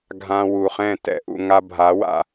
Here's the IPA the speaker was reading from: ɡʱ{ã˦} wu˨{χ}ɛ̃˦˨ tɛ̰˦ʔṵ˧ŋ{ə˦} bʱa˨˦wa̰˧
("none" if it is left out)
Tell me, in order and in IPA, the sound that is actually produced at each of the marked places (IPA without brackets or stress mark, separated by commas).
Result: ã˧, χ, a˦